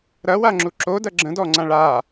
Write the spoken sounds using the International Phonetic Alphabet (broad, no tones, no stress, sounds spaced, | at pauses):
ɾ ɐ w a ŋ͡ǁ u ǁ o d ɐ ɡ͡ǁ ə̃ d ɔ ŋ͡ǀ ã ɭ a